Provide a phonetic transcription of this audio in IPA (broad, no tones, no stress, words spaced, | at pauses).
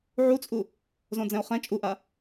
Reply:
ʕut͡sʼu | zõd͡zɛ̃o̯χɛ̃ t͡ʃʼuʔa